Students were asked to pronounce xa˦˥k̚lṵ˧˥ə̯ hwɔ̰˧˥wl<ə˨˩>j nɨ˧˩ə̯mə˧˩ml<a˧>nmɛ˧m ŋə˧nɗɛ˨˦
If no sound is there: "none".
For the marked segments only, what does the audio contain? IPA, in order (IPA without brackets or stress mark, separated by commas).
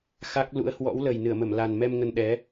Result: ə˨˩, a˨˩